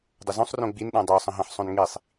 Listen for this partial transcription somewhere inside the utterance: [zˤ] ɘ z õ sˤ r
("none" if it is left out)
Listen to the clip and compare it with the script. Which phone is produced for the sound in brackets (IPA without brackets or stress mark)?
dˤ